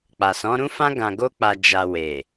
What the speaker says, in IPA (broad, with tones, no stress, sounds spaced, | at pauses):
k͡p a˨ s ɔ̃˨˦ ɾ ũ˦ f ã˦ ɡ ã˧ ɡ o˦ k͡p a˧ d͡ʒ a˧ w e˨